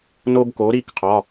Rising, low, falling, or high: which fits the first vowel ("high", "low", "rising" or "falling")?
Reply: high